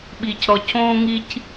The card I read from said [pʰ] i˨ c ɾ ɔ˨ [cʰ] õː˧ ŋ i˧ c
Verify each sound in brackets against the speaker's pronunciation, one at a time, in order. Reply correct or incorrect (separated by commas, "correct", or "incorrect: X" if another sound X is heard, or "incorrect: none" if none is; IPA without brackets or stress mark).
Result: incorrect: ɓ, incorrect: c